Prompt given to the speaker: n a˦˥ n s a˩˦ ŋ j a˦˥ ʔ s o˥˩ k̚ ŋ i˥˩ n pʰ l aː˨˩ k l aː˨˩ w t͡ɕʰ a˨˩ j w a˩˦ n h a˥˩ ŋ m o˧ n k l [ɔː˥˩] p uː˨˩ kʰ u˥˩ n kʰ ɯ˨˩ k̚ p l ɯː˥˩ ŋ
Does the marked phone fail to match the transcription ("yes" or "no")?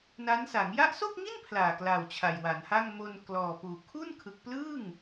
yes